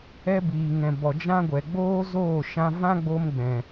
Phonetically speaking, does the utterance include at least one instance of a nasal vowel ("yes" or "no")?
yes